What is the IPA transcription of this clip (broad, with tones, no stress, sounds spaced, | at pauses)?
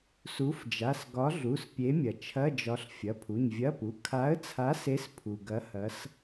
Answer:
s u˨˥ f d͡ʒ a˩˧˩ s ɡ ɒ˨˥ ɮ u˩˧˩ s pʲ e˨˥ mʲ ɐ˩ t͡ʃʰ ɐ˧˥˧ d͡ʒ ɒ˨˥ ɬ fʲ ɐ˩˧˩ pʰ u˩˧˩ ɲ vʲ ɐ˧˥˧ p u˩˧˩ kʰ a˨˥ ə̯ t͡sʰ a˨˥ s e˨˥ s pʰ u˩ ɡ ɐ˨˥ h ɐ˨˥ s